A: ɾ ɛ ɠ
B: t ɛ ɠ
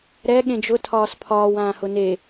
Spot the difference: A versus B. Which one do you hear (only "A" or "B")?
A